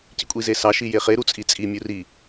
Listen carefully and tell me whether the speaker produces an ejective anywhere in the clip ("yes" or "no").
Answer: yes